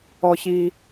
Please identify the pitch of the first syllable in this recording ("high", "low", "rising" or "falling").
low